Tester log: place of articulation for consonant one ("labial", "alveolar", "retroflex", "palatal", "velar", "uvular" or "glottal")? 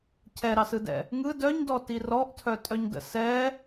palatal